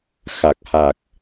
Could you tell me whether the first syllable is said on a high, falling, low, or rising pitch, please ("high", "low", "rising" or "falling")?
low